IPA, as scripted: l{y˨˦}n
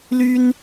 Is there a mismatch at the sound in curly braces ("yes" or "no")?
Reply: yes